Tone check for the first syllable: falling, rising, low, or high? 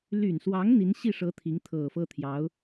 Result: low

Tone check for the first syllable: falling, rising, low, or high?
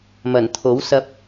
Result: low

